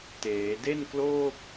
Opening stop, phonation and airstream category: plain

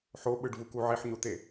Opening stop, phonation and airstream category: implosive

